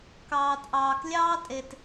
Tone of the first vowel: low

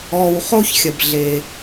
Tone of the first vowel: low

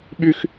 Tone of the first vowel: high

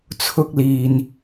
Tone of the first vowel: high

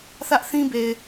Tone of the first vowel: high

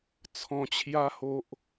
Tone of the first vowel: low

